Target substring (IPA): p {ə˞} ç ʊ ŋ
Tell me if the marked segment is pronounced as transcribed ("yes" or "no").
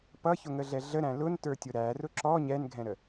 no